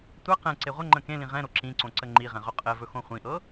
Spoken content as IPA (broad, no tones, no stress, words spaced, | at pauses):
tʷɛ qɛ̃ǀe ʁʷəŋ͡ǃə̃ kẽlĩ ʁɛ̃ ɾoǁĩǀõ ǀəŋ͡ǃiʁɛ̃ ʁɵqʼɘvɵ xõχʷĩʔɤ